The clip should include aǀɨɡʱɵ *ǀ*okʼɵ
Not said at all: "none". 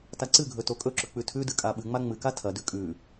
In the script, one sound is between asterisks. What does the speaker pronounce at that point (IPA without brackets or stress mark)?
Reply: t